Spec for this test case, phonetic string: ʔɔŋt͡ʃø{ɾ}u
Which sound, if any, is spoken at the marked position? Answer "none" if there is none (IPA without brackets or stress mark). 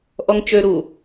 ɾ